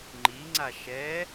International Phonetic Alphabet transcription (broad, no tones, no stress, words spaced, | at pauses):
ŋ͡ǃiŋ͡ǀa ʃɛ